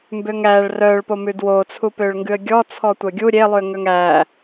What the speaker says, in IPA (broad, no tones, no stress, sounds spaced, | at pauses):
m b ø ŋ æ ɭ r œ ɭ p o m ʉ d w o t͡sʰ u p ø ɭ ŋ ɡ ʉ ə̯ ɡʲ ɔ t͡sʰ ɔ tʷ œ ɡʲ u ɾʲ e lˠ ʉ ə̯ ŋ œ ŋ æ